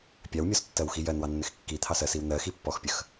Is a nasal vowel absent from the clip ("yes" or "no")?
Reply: yes